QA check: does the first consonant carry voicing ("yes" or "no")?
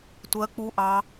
no